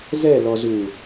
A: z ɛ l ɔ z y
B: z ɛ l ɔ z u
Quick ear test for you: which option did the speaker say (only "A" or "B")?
B